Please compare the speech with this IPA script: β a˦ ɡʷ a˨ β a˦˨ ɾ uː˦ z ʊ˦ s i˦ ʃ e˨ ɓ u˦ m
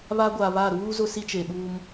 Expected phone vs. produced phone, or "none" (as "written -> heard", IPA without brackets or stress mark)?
ʃ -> t͡ʃ